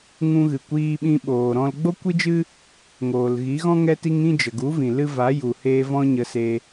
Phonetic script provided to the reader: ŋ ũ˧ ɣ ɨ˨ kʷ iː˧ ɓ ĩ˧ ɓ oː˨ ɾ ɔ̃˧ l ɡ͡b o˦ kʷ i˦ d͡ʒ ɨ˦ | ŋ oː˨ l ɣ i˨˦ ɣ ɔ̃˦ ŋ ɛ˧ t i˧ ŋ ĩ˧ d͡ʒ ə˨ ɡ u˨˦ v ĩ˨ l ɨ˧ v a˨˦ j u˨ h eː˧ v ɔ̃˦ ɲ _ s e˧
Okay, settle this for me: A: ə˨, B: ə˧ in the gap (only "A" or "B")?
B